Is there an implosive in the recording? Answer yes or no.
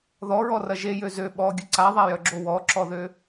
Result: yes